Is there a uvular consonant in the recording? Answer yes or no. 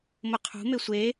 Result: yes